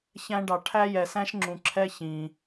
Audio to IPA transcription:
çæ̃˦ɖɑ˨ ʈʰæ˥jɛ˨sæ̃˥ʃŋ͡ǁũ˨ ǁʰɛ˦çĩ˩

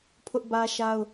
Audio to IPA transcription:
pʰʊ˦ʔbä˦ʃa˦ʊ̯

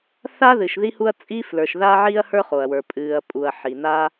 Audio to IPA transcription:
θa˥ðɨ˩ʃ ði˥hu˥ɐ̯ t͡sʼi˥flə˞˩ʃða˥ ʕiː˥ɐ̯hə˞˥χo˩ɐ̯wə˞˩ pʼɨː˩ɐ̯pʼu˩ɐ̯ ħi˩naː˥

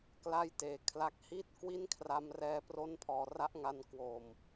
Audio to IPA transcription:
kla˥˩jteː˨˩kʰla˦˥k̚ hiː˥˩t̚kwi˥˩nkʰra˧m rɛː˧pro˦˥npʰɔː˩˦ ra˦˥ʔŋa˧nkwo˨˩m

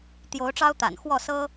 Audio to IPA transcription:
t̪jo˨˦ʊ̯ʈ͡ʂɑ˦ʊ̯t̪a̰˨˩nxwɔ˥˨ sɤ˦

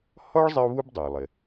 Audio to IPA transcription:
hɔ˥ɭ zˤɪ˥ʊ̯βu˥b dˤɛ˩ʊ̯lˠɪ˩

